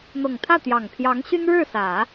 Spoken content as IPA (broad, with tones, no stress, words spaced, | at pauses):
n̪ɤ˨˩ŋt̪ʰä˥˩t̪jɑ˨˩ŋpʰjɑ˧˥ŋ ɕy˥nɻɻ̩˥˩sä˨˩˦